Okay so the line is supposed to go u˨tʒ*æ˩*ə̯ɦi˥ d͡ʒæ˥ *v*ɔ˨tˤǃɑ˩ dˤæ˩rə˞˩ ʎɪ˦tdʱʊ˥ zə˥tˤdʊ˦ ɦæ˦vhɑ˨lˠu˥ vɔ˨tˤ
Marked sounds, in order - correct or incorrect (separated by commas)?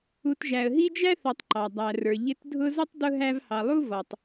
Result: correct, incorrect